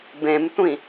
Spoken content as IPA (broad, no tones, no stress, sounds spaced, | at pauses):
b ẽ m tʷ ĩ